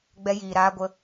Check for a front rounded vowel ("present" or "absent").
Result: absent